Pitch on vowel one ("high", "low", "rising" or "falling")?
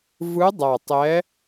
rising